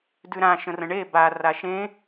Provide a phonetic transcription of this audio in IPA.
d ʉ ɾ ã ʃ ə̃ r ə̃ ɳ e b a r a ʃ ẽ

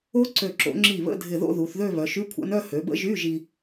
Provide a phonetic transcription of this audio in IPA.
o˦˥ ǀ ø˧˩ ǁ o̰˩˧ ŋ͡ǁ i˧˩ β ə̰˧˥˧ dʱ ɪ˧˩ ð o̰˥˧ ð u˩˧ θ ð ø˥˧ β œ˩˧ ʃ y˧˥˧ kʷʰ a̰˦˥ n œ˥˧ h ø˩˧ b ə̰˦˥ ʒ y˧˥˧ ʒ i˧

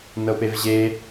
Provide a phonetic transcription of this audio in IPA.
n ɤ p e v ʑ e

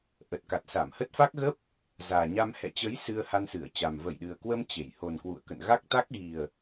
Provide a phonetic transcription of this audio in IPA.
ʔ ə˨˩ t̚ k a˨˩ t̚ s a˧˩ m h ə˦˥ t̚ f a˦˥ k̚ ɣ ə˦˥ p̚ | z aː˨˩ ɲ a˧ m h ɛ̰˧˨ t͡ɕ ə˨˦ j s ɨ˧ ə̯ h a˧ n s ɨ˧˩ ə̯ t͡ɕ a˨˩ m v ə˧˩ j ɗ ɨ˨˩ ə̯ k w ə˧ m t͡ɕ e˧˩ j h o˨˩ n k w ṵ˧˨ ə̯ k ə̰˧˨ n ɣ a˦˥ k̚ t̪ a˦˥ k̚ ɣ i˨˩ ə̯

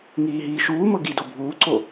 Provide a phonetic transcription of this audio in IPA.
ŋ iː ɦ iː ʃ uː m ɤ ɡ i d o bʱ uː ǀ o

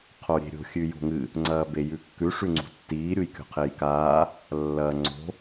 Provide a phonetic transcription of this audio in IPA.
qʰ o ɾʲ e̤ ɾʲ o̤ xʲ ʉ j o̤ ŋ ɨ | ŋ͡ǀ ɐː b e j ʉ kː ʉ ʂ ʉ ŋ͡ǀ ṳ tː iː ɾʲ u j kʲ o̤ qʰ e j k aː | lː ɐː ŋ͡ǀ o̤

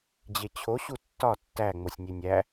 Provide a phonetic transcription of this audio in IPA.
d͡ʑ e t͡ɕʰ o ɕ u tː ɒ tː æ ŋ͡m o sʲ nʲ e nʲ æ

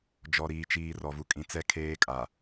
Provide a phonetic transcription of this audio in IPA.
d͡ʒ ɔ˨ ɾ iː˨ t͡ʃ iː˨ r ɔ˨ v u˨ kʼ ĩ˨ t͡s ɛ˦ kʰ eː˦ kʼ a˨

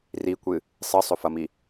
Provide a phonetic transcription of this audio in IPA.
r i kʷ ɨ | sˤ ɨ sˤ ɵ f ɐ m i

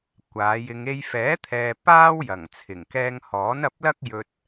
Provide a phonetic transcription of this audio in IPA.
kʷ aː˨˧ j ɪ˧ ŋ e˧ j f ɛː˨˥ t̪ʰ ɛː˨ p aː˥ w j ɐ˨˩ ŋ t͡sʰ ɪ˨˩ ŋ k ɛː˧ ŋ h ɔː˨˥ n ɐ˧ p̚ l ɐ˥ k̚ j ɵ˧ t̚

